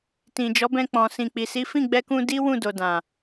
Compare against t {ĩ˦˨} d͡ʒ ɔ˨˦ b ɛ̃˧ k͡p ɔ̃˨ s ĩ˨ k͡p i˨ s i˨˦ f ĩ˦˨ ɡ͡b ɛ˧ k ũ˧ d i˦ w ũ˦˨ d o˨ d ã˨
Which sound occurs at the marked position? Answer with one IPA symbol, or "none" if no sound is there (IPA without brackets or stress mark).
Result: ĩ˨